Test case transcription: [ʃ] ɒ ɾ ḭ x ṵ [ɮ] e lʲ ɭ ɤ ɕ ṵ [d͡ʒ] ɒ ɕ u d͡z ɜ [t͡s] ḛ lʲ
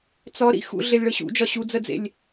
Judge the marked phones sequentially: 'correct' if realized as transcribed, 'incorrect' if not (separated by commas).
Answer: incorrect, correct, correct, incorrect